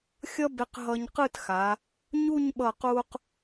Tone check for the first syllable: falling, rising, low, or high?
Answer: high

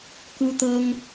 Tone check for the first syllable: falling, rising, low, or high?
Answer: high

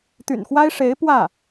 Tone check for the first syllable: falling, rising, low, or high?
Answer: low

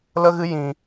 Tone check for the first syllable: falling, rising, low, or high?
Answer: high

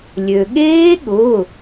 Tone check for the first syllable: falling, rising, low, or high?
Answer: low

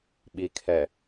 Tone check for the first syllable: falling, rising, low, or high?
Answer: low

